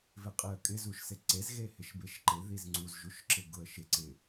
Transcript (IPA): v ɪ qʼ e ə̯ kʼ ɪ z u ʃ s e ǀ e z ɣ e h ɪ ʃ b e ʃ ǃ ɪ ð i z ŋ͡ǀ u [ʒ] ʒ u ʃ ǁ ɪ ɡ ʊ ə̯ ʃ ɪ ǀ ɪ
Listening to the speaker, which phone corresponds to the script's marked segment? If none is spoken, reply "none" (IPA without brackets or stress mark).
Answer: z